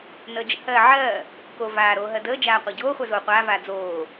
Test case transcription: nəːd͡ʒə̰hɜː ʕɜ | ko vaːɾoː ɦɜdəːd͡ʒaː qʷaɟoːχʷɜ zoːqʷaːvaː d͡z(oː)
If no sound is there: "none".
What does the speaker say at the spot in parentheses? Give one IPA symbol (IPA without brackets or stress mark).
oː